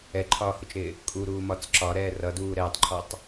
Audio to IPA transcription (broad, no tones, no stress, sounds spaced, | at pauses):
ɛ ǃʰ ɒː h u t͡ʃ ɾ ɪː | kʼ u ɾ uː m ɒ t͡s ǁ ɒ ɾ ɛː r ʌ d uː ɾ ɛː tˤ ǃʰ ɔ tˤ